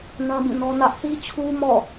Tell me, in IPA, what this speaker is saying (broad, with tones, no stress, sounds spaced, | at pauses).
n ã˦ b ĩ˦˨ n ɔ˦ n ä˦ ʔ θ i˦ t͡ɕʰ u˦ m ɔ̰˦˨